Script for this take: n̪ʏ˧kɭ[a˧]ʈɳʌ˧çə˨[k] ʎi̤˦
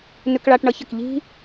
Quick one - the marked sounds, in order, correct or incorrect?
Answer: correct, correct

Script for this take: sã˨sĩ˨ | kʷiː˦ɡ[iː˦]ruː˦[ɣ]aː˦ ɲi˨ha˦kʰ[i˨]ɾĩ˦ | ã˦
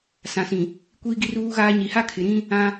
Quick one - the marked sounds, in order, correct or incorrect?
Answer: incorrect, correct, incorrect

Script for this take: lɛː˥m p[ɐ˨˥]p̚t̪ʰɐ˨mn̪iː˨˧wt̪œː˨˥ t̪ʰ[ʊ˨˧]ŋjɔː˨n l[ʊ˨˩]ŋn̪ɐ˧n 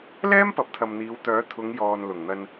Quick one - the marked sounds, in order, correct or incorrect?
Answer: correct, correct, correct

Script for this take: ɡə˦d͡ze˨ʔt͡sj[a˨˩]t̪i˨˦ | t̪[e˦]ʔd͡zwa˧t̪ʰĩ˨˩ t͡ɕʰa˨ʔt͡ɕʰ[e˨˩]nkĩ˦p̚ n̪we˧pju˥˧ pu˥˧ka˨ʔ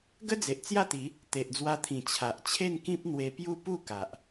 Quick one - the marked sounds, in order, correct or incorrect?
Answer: incorrect, incorrect, incorrect

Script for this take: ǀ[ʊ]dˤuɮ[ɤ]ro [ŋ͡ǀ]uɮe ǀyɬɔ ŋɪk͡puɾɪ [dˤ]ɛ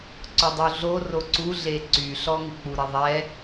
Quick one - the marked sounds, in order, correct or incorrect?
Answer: correct, incorrect, incorrect, incorrect

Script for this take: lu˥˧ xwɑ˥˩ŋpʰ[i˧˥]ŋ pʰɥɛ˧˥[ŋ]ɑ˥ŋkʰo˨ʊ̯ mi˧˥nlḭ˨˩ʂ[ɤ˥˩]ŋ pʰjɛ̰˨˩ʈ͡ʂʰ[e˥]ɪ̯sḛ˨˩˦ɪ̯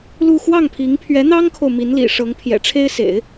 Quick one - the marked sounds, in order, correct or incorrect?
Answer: correct, incorrect, incorrect, correct

